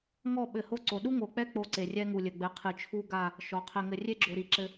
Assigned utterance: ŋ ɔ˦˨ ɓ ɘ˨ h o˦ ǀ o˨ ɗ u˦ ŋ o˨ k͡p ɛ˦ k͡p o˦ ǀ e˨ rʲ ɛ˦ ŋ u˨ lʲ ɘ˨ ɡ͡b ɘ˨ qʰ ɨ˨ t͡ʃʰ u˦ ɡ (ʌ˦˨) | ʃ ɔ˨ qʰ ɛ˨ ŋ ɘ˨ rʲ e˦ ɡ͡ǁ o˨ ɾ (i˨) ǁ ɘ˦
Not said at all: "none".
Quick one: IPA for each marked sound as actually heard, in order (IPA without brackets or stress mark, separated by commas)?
a˦˨, i˨